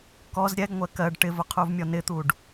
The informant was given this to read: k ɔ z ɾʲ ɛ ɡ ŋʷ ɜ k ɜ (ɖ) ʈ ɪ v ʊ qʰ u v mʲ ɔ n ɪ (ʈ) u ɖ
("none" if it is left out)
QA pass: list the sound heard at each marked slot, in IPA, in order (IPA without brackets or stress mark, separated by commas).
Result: ɖ, t̪